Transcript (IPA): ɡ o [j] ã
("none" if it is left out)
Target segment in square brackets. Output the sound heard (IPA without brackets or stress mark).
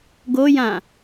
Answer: j